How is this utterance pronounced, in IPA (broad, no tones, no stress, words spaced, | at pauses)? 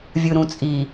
vʲɯɾũt͡sʼi